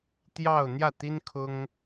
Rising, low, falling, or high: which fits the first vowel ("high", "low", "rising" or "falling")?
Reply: falling